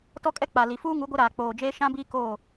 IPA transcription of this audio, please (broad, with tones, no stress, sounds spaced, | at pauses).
t ɔ˦ kʼ ɛ˦ k͡p a˨ l i˨ f uː˦ ŋ u˨˦ ɡʷ ɪ˦ ɾ aː˨ k͡p oː˨ d͡ʒ eː˦ ʃ ã˦ b iː˦ k oː˦˨